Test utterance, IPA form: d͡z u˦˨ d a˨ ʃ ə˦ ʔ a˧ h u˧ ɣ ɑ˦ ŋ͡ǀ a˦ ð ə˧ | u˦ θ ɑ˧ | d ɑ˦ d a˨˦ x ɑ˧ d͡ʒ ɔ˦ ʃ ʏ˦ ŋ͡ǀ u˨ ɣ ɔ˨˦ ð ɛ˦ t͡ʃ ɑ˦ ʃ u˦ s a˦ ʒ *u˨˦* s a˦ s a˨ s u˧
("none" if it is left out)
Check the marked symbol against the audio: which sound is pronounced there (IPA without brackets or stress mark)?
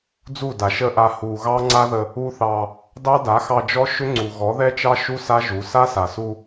u˨˦